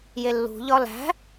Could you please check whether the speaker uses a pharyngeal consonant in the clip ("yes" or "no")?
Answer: no